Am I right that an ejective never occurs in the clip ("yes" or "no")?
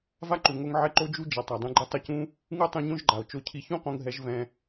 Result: yes